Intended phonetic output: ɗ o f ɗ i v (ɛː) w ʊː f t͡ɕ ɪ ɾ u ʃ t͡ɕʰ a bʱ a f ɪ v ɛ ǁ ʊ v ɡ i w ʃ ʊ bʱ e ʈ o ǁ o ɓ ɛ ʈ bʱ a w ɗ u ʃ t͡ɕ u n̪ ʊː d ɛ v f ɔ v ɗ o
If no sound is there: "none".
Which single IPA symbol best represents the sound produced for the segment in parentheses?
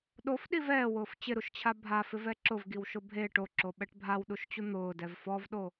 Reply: ɛː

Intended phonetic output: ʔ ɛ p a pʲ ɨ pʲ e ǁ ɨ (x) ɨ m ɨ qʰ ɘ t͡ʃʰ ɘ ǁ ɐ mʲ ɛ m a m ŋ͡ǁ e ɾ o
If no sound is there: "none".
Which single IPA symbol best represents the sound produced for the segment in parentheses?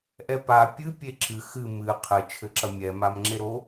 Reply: x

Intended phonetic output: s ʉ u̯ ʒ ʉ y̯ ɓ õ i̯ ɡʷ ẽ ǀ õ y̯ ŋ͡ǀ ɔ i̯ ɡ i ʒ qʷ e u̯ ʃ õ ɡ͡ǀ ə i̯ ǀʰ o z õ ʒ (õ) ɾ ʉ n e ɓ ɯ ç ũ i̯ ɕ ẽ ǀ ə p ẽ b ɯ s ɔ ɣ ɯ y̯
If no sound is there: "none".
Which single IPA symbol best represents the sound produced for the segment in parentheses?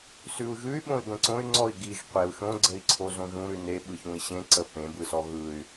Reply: ũ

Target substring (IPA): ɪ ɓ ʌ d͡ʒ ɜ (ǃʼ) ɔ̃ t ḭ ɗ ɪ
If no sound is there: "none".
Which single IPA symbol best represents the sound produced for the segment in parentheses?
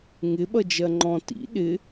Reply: ŋ͡ǃ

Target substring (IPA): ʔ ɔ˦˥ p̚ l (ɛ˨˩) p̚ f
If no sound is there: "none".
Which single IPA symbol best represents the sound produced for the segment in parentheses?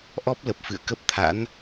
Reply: ə˨˩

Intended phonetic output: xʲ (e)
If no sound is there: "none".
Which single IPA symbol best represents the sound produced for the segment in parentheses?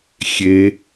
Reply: e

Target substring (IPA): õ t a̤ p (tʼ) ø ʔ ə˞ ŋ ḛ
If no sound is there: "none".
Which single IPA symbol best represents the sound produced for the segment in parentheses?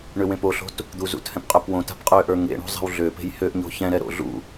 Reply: qʼ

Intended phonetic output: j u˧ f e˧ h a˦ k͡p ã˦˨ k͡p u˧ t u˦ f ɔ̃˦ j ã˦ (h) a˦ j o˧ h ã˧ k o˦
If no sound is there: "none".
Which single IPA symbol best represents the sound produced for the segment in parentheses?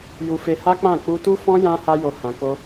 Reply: h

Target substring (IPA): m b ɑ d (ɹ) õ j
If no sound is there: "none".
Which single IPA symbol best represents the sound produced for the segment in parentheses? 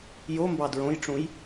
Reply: ɹ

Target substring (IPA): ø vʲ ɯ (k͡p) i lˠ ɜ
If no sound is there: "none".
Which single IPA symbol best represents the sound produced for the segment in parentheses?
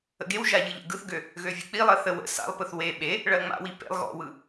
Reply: k͡p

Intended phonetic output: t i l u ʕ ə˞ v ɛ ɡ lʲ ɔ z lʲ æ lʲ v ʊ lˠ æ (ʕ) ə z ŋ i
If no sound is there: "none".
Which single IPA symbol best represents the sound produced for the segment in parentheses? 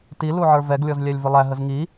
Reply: ɦ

